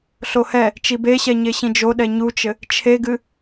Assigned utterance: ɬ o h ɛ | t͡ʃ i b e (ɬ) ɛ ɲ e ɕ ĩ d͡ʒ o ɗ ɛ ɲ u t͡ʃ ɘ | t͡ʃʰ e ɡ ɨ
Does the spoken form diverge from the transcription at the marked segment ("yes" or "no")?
yes